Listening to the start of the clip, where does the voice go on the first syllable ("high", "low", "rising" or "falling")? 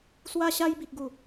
high